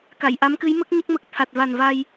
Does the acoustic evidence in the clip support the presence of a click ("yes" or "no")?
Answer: no